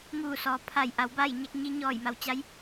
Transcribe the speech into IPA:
ŋ uː˧˩ s ɔː˩ pʰ a˧˩ j ʔ a˩˧ w b a˥˨ j ɲ a˧ k̚ ɲ i˧ ɲ ɔː˧˩ j m a˩˧ w t͡ɕ a˧˥ j

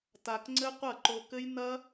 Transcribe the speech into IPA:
t a˧ k ŋ͡ǀ ɘ˦ qʷ ɐ˦˨ ǃ o˧ k ɘ˦ j n ɐ˦

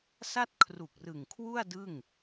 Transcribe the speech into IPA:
s a˥˩ t̚ kʰ r u˨˩ k̚ r ɯ˨˩ ŋ kʰ w u˥˩ a̯ d ɯ˥˩ ŋ

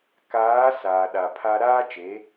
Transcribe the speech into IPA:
k aː˨˦ s aː˨ ɗ a˨ pʰ a˦ ɾ aː˦ t͡ʃ e˨˦

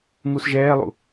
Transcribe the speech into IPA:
ŋ u s ʒ ɛː lˠ ṵ

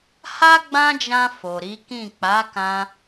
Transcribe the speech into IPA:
h a˦ ɡ͡b ã˦ d͡ʒ ã˧ f o˨ ɾ i˨˦ k ĩ˦˨ k͡p a˨˦ k ã˦

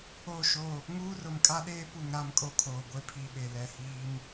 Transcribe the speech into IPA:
o˦˨ ʃ o˦˨ | ŋ uː˦ r ʊ˨ m kʼ a˦ ɗ eː˦ p u˨ ŋ ɾ a˦ m kʼ o˦ kʰ oː˨ ɡʷ e˦ pʰ i˨ ɓ e˨ l ɛ˨ h iː˦ m

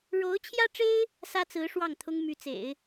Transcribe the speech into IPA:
ɻ o˧˥ ʊ̯ t͡ɕʰ j ä˥ ʈ͡ʂ e˥ ɪ̯ | s ä˥ t͡s ɹ̩˧˥ ʂ w ɑ˥˩ ŋ t̪ʰ ʊ˥ ŋ m y˧˥ t͡s ḛ˨˩˦ ɪ̯

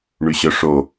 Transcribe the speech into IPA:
ɳ y ɕ œ ʂ o

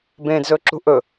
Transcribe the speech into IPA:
b ẽː d z ɵː ǁ ṳ ʔ ɵ

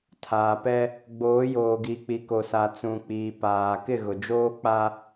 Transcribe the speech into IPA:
tʰ aː˨ p ɛ˦ | ɡ͡b oː˨˦ j oː˨ ɡ i˨ k͡p i˨ k o˨ s a˨ t͡s ũ˨ k͡p iː˨ p aː˨ k ɪ˦˨ ɣ ʊ˨ d͡ʒ oː˦ k͡p a˦

